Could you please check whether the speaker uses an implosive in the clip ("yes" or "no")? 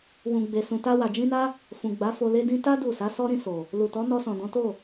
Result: no